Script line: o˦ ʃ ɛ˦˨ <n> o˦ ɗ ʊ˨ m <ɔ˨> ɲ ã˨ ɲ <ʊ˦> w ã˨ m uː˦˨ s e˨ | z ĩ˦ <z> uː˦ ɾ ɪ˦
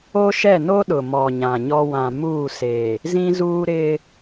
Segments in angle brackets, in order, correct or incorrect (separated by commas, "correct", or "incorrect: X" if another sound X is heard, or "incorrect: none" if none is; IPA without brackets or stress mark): correct, correct, incorrect: ɔ˦, correct